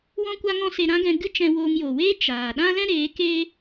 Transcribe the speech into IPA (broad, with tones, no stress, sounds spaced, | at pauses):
w ɔ̃˧ kʷ a˧ ŋ ɔ̃˧ s e˧ ɾ ã˦ ɡ ɛ̃˧ ɡ ɨ˦ t͡ʃ ɛ̃˧ w oː˧ ŋ j o˨ w eː˦ t͡ʃ aː˨ ɗ ã˦ l ɛ̃˦ ɾ eː˨˦ k eː˦